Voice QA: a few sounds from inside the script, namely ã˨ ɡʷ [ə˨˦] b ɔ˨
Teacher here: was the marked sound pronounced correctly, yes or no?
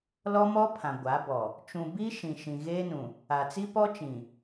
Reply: no